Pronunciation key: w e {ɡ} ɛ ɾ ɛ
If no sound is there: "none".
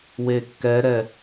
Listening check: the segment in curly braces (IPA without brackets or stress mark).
kː